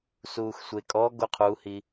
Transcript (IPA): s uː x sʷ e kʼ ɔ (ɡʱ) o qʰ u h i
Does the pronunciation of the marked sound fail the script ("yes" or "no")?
yes